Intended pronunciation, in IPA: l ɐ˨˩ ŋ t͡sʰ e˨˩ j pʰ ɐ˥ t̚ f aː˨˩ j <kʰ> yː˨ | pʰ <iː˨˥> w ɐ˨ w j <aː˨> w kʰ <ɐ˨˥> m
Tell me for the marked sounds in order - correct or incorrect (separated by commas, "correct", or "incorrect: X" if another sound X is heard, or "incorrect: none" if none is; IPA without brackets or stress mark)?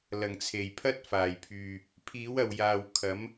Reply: incorrect: pʰ, correct, correct, correct